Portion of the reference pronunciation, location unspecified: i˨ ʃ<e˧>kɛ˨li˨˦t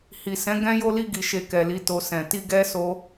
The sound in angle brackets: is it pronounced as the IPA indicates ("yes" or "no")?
yes